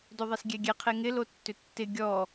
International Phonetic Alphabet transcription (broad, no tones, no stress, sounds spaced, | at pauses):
d o ðˤ e s ɡʲ ɛ ɡʲ ɛ qʰ e ŋ ɪ l o tː ʏ tː ɪ ɡʲ ɔ